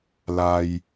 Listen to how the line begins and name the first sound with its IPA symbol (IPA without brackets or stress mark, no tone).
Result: l